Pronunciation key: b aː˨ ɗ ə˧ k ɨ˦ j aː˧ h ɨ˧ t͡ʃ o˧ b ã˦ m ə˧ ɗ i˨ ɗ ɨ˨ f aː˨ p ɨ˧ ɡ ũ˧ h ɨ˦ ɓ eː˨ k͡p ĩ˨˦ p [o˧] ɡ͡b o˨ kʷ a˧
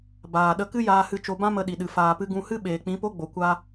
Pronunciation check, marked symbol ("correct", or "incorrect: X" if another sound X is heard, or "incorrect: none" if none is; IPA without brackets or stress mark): incorrect: o˦